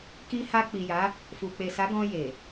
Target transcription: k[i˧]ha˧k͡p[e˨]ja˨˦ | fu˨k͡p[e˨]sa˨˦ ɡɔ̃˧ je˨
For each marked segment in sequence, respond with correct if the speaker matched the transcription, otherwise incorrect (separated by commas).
correct, incorrect, correct